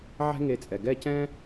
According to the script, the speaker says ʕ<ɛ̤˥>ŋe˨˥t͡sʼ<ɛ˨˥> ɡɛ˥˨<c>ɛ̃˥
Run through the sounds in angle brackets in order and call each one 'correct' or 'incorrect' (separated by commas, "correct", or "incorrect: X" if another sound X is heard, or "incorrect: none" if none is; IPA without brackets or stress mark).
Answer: correct, incorrect: ɛ˩, correct